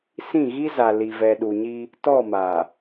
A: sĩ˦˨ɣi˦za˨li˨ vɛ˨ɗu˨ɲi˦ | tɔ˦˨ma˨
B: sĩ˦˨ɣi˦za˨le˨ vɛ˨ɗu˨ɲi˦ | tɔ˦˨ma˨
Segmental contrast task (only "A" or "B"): A